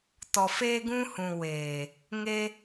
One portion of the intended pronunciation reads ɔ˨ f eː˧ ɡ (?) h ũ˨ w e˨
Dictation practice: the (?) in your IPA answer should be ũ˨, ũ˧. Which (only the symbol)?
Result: ũ˧